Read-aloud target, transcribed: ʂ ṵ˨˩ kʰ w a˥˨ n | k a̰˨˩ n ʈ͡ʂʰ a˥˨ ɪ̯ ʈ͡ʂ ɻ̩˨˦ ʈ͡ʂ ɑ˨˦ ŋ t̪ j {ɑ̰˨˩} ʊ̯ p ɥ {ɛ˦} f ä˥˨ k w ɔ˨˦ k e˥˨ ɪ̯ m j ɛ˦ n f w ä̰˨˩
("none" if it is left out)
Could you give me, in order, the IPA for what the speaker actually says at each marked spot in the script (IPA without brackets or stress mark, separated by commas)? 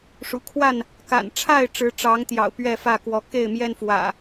ɑ̰˨˩, ɛ˥˨